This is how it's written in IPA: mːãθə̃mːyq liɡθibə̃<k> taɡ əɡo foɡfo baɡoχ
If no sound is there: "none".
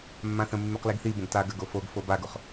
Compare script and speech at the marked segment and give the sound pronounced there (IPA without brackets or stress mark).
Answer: ɡ